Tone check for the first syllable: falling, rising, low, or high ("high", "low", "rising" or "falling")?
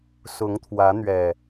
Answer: rising